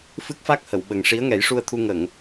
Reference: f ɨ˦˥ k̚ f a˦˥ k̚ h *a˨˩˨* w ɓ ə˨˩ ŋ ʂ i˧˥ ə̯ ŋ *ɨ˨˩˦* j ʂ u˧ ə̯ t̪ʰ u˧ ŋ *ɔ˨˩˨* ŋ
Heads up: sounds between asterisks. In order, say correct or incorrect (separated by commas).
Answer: incorrect, incorrect, incorrect